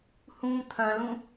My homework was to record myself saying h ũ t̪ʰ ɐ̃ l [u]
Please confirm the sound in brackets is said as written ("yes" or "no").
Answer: no